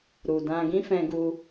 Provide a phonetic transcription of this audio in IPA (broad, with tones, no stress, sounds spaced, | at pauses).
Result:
ɾ u˨ d ã˧ ɡ ĩ˦ f ɛ̃˧ ɡ u˧